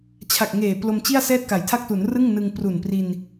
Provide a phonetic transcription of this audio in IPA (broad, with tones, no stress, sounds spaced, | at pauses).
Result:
t͡ɕʰ a˨˩ k̚ ŋ eː˨˩ p l o˧ m t͡ɕ i˥˩ a̯ s ɛː˥˩ t̚ k a˩˦ j tʰ a˥˩ k̚ t u˩˦ n r ɯ˥˩ ŋ n ɯ˧ ŋ p r u˨˩ n p r i˧ n